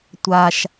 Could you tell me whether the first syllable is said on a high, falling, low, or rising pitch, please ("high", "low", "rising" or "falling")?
low